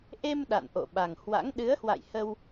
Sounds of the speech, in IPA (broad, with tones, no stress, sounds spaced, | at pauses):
ʔ e˧ m ɗ a̰˧˨ n ʔ o̰˧˨ ɓ a˨˩ ŋ h w a̰˧˥ ŋ ɗ ɨ˨˦ ə̯ h w a̰˧˨ j h ə˧ w